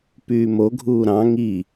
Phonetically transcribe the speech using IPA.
p yː m o ɡʱ uː ɾ ɑ̃ ŋ i

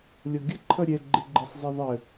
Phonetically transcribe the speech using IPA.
lʲ ɔ ɡʲ ə ǃʰ ʌ ɾʲ ɛ ɡ͡ǃ ɪ ɡ͡ǃ ɪ sˤ zˤ ɛ ðˤ ə

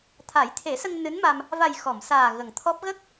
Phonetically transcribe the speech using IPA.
t̪ʰ a˨˩˦ j t̪ʰ e˨˩˦ s ə˧ ŋ n ɨ˧˥ n m a˧ m | v a˨˩ j x ɔ˨˩˨ m s aː˨˩ ɣ ə˨˩ ŋ t̪ʰ ɔ˦˥ p̚ ɣ ə˦˥ k̚

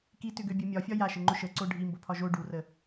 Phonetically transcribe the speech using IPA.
k i t ʏ ɡ ø bʲ ʊ mʲ ɒ fʲ ɒ j a ʃ ə ŋ͡ǃ ʊ ʃ ə ǀ o ɖʱ i m b o pʰ ɒ ʒ o ɖ u r ə

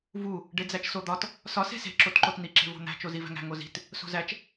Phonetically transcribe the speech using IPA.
v u | ɖ e d͡z æ t͡ʃ s o d̪ ɒ t | s ɒ s e̤ s e̤ ǁ o t ǃ o t n̪ i ǁ e̤ v o̤ n̪ æ̤ t͡ʃ o z i v æ̤ ŋ æ̤ ŋ o z i̤ t | s o̤ z æ t͡ʃ

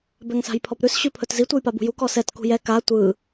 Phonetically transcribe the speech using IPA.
b ɛ ŋ s a̤ j pʰ ɔ p ɾ ʉ s ɕ ʉ pʰ ɵ t z i tʷ ɯ j p a b ṳ j u k ɔ s ɛ t k ṳ j ɛ k a tʷ ɯ

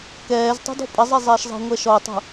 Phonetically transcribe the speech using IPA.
k ɛː z tˤ ṳ d ɔ̤ pʼ ɐ zˤ ɛ zˤ ɛː ʃ zˤ ɛ̤ ŋʷ ɛ ʃ ɔ tˤ ṳ

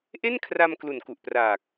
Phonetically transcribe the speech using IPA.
ʔ e˥˩ n kʰ r a˧ m k l u˨˩ n k u˨˩ ʔ p r aː˨˩ k̚

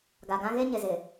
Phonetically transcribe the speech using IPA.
ɡ a˨ ɡ ã˦ ɣ e˦ ɲ ɪ˨ z ɪ˨

